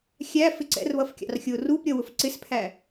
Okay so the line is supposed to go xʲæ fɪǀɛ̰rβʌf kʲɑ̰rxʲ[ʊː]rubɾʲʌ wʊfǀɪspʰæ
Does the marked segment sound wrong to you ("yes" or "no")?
no